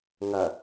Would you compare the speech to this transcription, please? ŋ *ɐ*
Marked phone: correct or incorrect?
correct